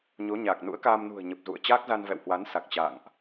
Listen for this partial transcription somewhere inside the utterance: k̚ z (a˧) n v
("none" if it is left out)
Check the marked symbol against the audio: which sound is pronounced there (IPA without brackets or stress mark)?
a˧